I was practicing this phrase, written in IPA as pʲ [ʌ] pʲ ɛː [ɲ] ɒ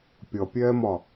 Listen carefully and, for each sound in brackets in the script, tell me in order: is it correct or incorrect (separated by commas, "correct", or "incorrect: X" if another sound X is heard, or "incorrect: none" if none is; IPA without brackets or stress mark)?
correct, incorrect: m